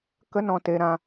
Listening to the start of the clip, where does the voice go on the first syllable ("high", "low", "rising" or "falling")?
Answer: high